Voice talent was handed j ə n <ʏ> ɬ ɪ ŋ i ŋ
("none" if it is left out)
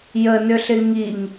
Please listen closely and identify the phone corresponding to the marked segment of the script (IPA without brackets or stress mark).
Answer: ʏ